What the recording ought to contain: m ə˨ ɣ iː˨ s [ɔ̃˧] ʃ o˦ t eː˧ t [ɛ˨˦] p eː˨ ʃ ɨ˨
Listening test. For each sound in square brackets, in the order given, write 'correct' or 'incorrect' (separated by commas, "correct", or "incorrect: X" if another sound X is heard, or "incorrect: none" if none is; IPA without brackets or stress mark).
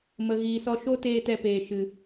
incorrect: ɔ˧, incorrect: ɛ˧